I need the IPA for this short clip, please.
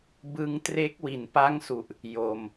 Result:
b ɯ˧ ŋ t r e˦˥ k̚ w i˩˦ n p a˦˥ ŋ s u˨˩ ʔ | j o˨˩ m

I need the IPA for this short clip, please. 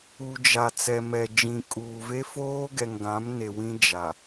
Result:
u˨ d͡ʒ a˨ t͡s ɛ˨ m ɛ˨ d͡ʒ ĩ˨ kʼ uː˨ v e˦ f oː˦ ɡ ɛ˨ ŋ ɡ ã˨˦ m n e˨ w ĩ˦ d͡ʒ a˨

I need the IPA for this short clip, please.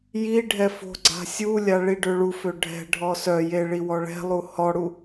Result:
j i ɖʱ ɛ f o̤ ɡ͡ǀ a̤ sʲ u lʲ a ɭ i ɖ ø ɭ u f ø ɖʱ ɛ̤ ɖʱ ɔ s œ j e ɭ i w ɔ ɭ ɛ̤ lˠ u h ɔ ɽ u

